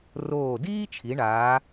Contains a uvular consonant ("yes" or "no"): no